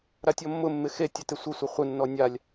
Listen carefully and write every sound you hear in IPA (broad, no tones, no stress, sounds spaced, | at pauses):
ɾ a tʲ ɔ mː ʊ mː ɪ x e tʲ ʊ t ɪ sʷ ə sʷ ə χʷ ɪ nː ɔ nʲ a lʲ